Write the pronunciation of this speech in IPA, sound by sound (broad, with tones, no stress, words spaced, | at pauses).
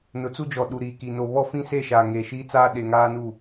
nʊ˨˦t͡su˦d͡ʒɔ˨ ɗu˨ɾiː˨ki˨ no˨βɔ˦fĩ˦se˦˨ ʃaː˨ŋeː˨ʃiː˦t͡saː˦ ɗe˨ŋaː˦nu˦˨